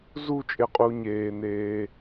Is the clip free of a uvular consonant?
no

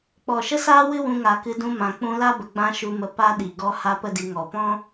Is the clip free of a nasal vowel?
no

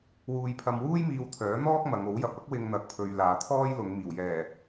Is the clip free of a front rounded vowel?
no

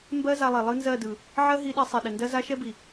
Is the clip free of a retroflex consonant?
yes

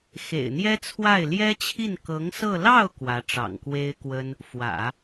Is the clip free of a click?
yes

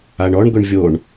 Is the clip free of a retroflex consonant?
no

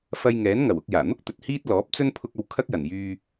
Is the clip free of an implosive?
yes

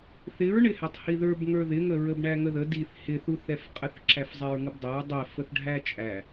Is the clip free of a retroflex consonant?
no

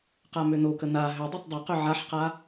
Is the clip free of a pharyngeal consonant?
no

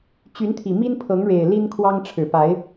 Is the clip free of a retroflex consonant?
no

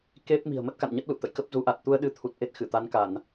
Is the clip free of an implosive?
no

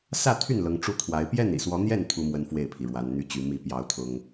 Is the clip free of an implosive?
yes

